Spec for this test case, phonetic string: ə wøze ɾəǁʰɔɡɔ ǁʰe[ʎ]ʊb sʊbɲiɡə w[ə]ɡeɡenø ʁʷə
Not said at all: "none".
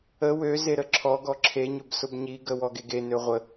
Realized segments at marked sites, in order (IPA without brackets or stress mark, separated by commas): ɲ, ɔ